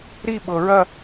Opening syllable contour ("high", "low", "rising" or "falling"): falling